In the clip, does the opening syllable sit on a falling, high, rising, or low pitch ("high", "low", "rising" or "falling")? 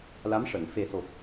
rising